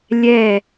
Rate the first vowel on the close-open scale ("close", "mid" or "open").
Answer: mid